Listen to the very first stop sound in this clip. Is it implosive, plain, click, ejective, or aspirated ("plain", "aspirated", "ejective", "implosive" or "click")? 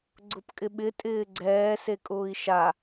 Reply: click